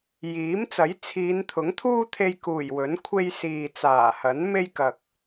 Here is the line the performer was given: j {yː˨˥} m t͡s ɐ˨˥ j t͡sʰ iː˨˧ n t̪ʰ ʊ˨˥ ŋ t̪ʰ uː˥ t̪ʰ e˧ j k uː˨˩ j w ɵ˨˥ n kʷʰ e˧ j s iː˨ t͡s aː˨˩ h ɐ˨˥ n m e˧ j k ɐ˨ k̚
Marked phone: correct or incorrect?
incorrect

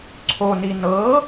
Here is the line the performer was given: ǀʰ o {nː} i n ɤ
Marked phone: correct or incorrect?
incorrect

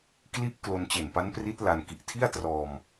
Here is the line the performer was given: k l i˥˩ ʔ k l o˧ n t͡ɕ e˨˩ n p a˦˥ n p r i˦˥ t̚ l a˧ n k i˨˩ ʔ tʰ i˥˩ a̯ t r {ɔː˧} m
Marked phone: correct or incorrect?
correct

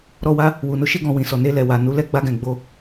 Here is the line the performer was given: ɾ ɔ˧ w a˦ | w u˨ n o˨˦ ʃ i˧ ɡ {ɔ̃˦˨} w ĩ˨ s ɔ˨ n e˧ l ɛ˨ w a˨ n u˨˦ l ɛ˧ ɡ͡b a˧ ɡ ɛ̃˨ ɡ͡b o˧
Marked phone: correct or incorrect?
incorrect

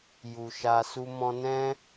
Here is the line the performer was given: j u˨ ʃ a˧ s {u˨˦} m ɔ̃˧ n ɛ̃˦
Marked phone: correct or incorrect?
incorrect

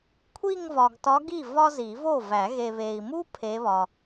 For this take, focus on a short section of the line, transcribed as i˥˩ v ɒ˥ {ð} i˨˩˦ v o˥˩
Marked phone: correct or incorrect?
incorrect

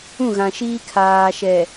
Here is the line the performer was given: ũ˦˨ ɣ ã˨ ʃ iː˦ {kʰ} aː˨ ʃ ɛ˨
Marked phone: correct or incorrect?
correct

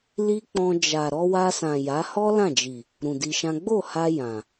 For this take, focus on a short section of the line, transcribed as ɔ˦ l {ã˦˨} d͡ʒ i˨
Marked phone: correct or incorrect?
correct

